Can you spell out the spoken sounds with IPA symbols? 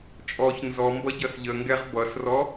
t͡ʃʼ ɔ ç n z ɔ m b ʌ ɟ ʌ s ʎ ə ŋ ɡ ɛ ʁ b ʌ s r ɔ

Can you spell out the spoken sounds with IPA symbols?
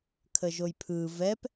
kʰ ə ʒ o j pʰ ɯ v ɛ p

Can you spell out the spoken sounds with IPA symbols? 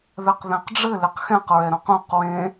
ð ɛ q ð ɛ̃ q ɖ͡ʐ ɘ l e q x ɛ̃ q ɹ ɛ ɾ õ q ũ q w ẽ

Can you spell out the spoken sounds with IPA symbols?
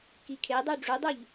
k i kʰ e dˤ ø ɖ͡ʐ u dˤ u ʎ

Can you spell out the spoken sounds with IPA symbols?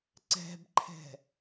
ǀ ɛ̤ b ǃʰ ɛ̤

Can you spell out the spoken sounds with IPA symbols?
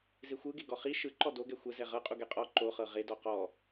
z e xʷ ɯ ɡ e ɡ ɔ χ i ʃ ɯ ǃ ɔ d o ɡ ɛ xʷ ɛ z ɛ ʁ ɤ qʼ u ɡ ɛ qʼ ɔ ǃ o χ ɤ ʁ e d ɔ q ɔ

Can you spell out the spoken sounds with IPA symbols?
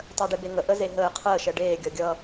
tˤ əː ɖ e b e ŋ ə ʔ ə z e ɦ əː qʰ əː ʃ ɛ ɖ eː ɡʲ ʌ ɡʲ ʌ

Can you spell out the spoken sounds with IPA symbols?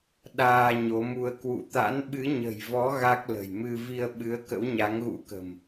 ɗ aː˧ ɲ o˨˦ m u˧ ə̯ k w ṵ˧˨ t̪ a̰˧˥ n ɓ ɨ˨˦ ɲ ə̤˨˩ j v ɔ˨˦ ɣ a˦˥ k̚ l ə̤˨˩ j m ɨ˧ v i˧ ə̯ ɓ ɨ˨˦ ə̯ k ə̰˧˥ w ɲ a˨˦ ŋ ɣ ṵ˧˥ k ə̤˨˩ m

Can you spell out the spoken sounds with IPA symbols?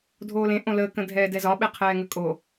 dʱ oː l ẽ ʔ õ l əː k ə̃ dʱ ɛː d ɛ z ɒ ɓ e qʰ ɛː ŋ ə kʼ o

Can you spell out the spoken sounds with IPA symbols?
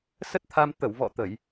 s ə˦˥ t̚ t̪ʰ a˧ m t̪ ə˧˩ w v ɔ̰˧˨ t̪ ə˧˩˨ j

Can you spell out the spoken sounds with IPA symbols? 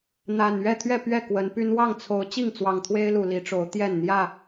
n̪ a˨˩ n ɥ ɛ˥˨ t̪ʰ ɥ ɛ˥˨ p ɥ ɛ˥˨ k w ə˨˦ n p y˦ n w ɑ˥˨ ŋ t͡sʰ o˨˦ ʊ̯ t͡ɕ i˥˨ ŋ t͡s w ɑ˨˩ ŋ t̪ʰ w e˦ ɪ̯ l u˨˩ l i˨˦ ʈ͡ʂ o˨˦ ʊ̯ t̪ j ɛ˥˨ n n̪ j ä˥˨

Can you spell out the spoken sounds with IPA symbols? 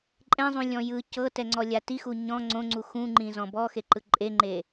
ǃʼ ɛ̃ zˤ ũ lʲ ɔ̃ j ɯ c ɤ t ɛ ŋ͡ǀ ɔ lʲ a t i x u ɲ ɔ̃ ŋ͡ǀ õ ŋ͡ǀ u x ũ ŋ͡ǃ ĩ z ɔ̃ b ɔ x e ǃ ɯ ǃʼ e ŋ͡ǃ e

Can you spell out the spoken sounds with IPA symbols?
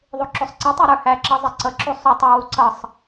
ðˤ u ǁ u sˤ ǀ i tˤ i ɾ ə˞ h æ ǁ ʌ zˤ ɪ ǀ ʌ ǁ u sˤ ʊ tˤ ʊ w u ǀ ʌ sˤ

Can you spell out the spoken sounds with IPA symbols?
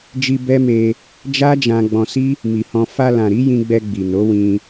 d͡ʒ i˧ b ɛ˦ m e˧ | d͡ʒ a˦ d͡ʒ ã˧ ɡ͡b ɔ̃˧ s i˦ | m i˨ h ɔ̃˧ f a˧ l ã˨ ɾ i˨˦ j ĩ˧ ɡ͡b ɛ˧ ɡ͡b i˨ n o˨˦ w ĩ˧

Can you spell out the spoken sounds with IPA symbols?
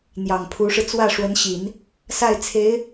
n̪ j ɑ˨˩ ŋ pʰ u˧˥ ʂ ɻ̩˧ t͡s w ä˥˩ ʂ w ə˧˥ n ɕ i˨˩˦ n | s a˥˩ ɪ̯ t͡sʰ e˧˥ ɪ̯

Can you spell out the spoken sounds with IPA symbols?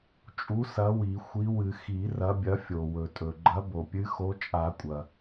t͡ʃʼ u˨˥ s ɐ˨˥ w i˨˩˦ xʷ i˨˥ w ɨ˨˩˦ x i˨˩˦ r ɐ˨˥ bʲ ɐ˨˥ fʲ o˩ w ɵ˩ tʼ ɵ˩ ɡ͡ǃ ɐ˨˥ b o˩ pʲ ɨ˨˥ x o˨˥ t͡ʃʼ a˨˩˦ kʷʼ ɐ˩

